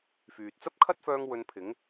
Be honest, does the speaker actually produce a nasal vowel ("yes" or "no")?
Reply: no